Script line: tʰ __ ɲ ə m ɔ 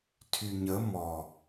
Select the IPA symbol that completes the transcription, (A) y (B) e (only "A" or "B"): A